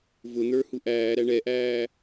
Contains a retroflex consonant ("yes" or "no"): yes